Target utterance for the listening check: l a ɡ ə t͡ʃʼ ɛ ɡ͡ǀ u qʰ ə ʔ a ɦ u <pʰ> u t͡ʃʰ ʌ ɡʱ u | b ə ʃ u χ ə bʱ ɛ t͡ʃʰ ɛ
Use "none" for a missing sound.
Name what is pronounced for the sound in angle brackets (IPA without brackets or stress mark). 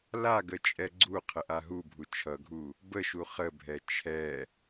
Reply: bʱ